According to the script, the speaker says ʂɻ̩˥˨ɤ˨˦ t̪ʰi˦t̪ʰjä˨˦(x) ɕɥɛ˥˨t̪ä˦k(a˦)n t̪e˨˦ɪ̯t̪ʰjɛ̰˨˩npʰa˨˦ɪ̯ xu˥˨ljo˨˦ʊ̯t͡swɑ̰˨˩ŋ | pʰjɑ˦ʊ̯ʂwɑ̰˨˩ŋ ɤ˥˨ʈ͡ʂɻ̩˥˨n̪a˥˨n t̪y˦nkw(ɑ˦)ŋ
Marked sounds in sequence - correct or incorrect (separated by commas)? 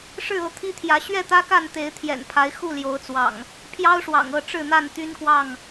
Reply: incorrect, incorrect, incorrect